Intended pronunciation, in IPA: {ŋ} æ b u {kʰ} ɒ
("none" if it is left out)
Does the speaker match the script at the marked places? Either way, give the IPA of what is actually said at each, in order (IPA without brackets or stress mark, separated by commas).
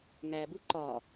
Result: ŋ, ǃ